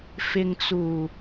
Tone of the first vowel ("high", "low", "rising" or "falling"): low